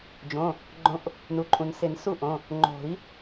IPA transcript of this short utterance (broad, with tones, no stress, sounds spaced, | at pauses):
d͡ʒ õ˩˧˩ | ɡ͡ǃ õ˨˥ ʔ | n u˩˧˩ ǃʼ ũ˩ n s ɪ˨˩˦ n s u˥˨ ʔ õ˩˧˩ | ŋ͡ǃ o̤˨˩˦ i̯